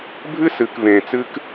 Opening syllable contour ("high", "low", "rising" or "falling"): high